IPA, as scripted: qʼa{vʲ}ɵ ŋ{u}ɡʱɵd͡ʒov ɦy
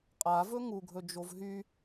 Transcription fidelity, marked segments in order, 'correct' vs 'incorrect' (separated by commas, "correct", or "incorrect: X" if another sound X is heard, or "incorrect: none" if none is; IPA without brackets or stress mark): incorrect: v, correct